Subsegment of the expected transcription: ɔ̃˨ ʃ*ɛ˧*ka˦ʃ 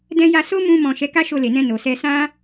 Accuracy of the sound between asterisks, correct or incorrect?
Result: incorrect